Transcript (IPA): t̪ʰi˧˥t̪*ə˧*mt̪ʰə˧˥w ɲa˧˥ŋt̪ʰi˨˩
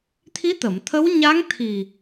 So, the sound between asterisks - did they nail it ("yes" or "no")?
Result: no